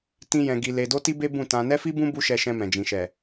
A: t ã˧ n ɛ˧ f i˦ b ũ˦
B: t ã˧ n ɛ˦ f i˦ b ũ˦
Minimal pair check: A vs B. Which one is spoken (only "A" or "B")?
B